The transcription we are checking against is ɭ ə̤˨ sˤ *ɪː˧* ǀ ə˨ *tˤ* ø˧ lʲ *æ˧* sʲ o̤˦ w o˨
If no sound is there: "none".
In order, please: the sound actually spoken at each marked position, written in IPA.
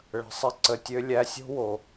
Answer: ɪ˧, tʲ, æ˧

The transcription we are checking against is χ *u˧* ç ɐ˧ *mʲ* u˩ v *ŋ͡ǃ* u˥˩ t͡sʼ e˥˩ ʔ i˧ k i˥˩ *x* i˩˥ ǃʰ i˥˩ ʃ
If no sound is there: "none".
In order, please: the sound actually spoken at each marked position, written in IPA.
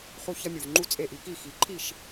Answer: u˧, mʲ, ŋ͡ǃ, x

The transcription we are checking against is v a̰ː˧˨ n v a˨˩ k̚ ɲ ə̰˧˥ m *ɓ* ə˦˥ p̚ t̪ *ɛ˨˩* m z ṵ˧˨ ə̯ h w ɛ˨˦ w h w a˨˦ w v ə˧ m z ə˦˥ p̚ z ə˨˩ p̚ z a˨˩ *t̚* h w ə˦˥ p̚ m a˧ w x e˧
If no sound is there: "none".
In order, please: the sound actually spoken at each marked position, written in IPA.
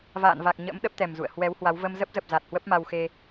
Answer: ɗ, ɛ˨˩, t̚

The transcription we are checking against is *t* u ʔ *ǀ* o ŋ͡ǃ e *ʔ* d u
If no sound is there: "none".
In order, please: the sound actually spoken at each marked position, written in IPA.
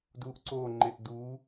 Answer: d, ǀ, ʔ

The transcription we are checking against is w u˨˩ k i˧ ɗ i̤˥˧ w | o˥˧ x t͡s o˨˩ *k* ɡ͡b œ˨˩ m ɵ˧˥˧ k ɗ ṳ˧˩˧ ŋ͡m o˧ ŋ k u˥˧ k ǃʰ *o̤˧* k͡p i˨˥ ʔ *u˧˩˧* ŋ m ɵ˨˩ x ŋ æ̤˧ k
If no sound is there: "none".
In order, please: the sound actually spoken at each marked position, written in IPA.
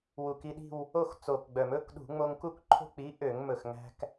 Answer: k, o̤˥˧, ø˧˩˧

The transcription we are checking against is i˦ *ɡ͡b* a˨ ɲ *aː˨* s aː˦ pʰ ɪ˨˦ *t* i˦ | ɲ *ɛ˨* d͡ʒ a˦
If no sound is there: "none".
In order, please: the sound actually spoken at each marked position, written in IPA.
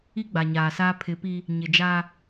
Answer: ɡ͡b, aː˨, p, ɪ˨

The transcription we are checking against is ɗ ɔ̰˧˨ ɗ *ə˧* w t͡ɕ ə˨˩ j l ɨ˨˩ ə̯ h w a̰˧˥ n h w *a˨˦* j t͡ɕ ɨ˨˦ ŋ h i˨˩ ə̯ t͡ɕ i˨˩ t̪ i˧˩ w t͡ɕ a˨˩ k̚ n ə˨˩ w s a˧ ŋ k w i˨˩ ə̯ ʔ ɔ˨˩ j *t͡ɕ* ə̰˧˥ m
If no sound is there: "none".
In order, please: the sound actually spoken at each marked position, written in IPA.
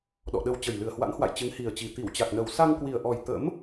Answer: ə˧, a̰˧˨, t̪

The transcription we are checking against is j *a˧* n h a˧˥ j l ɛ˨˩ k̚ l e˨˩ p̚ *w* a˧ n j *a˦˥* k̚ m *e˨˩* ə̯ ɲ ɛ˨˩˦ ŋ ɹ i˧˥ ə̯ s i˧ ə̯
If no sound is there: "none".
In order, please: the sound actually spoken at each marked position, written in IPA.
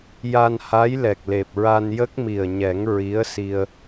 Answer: a˧, ɹ, ə˦˥, i˨˩

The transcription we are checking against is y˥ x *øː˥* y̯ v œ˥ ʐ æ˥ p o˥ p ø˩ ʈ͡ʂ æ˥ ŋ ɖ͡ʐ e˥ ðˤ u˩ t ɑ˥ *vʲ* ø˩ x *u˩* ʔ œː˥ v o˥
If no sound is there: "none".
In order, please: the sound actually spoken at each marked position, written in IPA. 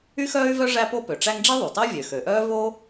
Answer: œː˥, vʲ, ø˩

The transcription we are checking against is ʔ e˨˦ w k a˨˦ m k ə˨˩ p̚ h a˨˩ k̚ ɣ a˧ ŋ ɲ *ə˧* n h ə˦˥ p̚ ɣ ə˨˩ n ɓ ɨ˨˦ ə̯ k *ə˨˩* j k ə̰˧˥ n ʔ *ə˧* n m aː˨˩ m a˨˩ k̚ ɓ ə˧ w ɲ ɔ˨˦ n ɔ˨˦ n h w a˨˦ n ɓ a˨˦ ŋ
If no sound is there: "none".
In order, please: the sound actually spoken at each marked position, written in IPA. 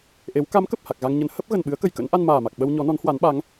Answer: ə˨˦, ə˨˩, a˧

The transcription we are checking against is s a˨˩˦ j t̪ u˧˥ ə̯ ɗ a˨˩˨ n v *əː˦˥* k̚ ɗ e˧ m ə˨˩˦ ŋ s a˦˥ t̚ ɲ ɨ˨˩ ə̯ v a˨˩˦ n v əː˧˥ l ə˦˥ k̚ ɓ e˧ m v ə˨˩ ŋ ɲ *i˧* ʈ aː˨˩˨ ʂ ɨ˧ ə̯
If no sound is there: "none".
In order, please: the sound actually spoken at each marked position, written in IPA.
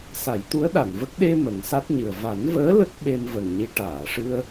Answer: ə˦˥, i˧

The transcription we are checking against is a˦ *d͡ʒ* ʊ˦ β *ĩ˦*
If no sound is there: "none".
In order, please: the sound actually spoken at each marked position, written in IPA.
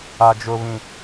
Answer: d͡ʒ, ĩ˦

